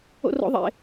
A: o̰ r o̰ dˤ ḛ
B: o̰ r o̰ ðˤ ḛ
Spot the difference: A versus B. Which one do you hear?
B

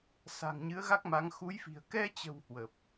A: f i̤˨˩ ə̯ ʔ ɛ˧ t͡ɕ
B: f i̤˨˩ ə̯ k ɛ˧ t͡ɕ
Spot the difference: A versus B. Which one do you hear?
B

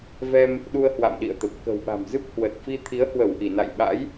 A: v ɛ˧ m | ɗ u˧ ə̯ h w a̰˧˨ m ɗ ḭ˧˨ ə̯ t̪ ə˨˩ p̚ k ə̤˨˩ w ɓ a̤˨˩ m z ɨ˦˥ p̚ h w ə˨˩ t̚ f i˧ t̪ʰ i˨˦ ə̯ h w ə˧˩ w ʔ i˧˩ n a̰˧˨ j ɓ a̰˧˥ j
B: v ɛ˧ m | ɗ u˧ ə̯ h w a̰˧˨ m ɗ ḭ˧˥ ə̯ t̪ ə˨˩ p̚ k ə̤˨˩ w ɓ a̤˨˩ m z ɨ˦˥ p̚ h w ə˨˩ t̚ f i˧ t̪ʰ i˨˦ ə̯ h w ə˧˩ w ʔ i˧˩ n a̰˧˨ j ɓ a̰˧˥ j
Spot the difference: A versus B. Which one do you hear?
A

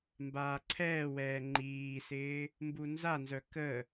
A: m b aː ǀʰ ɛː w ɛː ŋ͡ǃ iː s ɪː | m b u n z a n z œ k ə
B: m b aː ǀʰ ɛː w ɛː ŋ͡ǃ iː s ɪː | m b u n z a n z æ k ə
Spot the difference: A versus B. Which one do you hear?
A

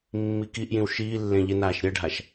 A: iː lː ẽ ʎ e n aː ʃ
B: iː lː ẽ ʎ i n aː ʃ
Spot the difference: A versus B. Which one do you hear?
A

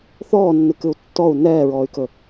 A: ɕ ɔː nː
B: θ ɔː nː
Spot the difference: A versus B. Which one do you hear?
B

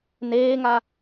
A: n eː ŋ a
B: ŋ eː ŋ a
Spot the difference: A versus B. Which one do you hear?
A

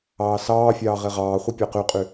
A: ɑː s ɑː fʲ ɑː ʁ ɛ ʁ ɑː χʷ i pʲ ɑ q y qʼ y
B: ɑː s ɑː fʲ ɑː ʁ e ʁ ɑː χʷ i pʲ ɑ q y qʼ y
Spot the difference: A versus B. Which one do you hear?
B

